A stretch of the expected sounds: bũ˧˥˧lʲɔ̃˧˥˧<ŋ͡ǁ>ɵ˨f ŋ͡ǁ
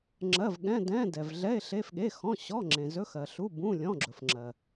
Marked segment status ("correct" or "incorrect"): incorrect